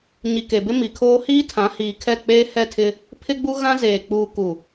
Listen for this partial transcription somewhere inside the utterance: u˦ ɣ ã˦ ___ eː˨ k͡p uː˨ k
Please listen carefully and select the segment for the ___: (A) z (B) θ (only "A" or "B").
A